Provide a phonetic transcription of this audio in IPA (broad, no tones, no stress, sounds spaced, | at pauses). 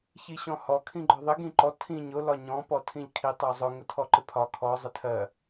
ç i ɕ ɔ̃ h ɔ kʰ ĩ ɡ͡ǃ ɒ ðˤ ɪ ɡ ĩ ǃ ɔ tʰ ĩ ɲ ʊ l ɒ ɲ ɔ̃ p ɔ tʰ ĩ ʎ kʰ i tˤ ʌ zˤ ʊ ŋ ʊ tʰ ɔ ǃ ɪ pʰ ɒ kʰ ɔ zˤ ɪ tʰ ɜ